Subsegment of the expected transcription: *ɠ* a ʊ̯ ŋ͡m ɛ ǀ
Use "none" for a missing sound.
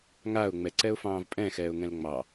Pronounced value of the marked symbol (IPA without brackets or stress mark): ŋ